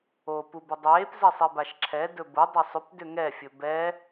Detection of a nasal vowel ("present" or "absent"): absent